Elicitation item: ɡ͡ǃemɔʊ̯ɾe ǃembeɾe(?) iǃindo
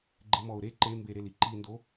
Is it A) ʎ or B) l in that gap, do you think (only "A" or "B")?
B